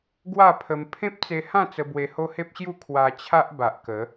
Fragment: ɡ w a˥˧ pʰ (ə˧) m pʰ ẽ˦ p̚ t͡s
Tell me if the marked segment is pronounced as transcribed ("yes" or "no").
yes